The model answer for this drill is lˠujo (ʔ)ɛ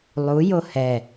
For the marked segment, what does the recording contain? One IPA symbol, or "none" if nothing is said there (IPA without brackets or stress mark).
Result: h